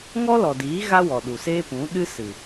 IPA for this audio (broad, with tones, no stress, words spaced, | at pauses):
ŋɔ˦lɔ˨diː˨˦ ɣa˦wɔ˨ɗu˨ seː˦pũ˨˦ɗɨ˦sɨ˨